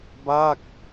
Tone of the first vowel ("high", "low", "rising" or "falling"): falling